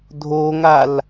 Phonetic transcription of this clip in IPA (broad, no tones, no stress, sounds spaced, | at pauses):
dʱ oː ŋ a l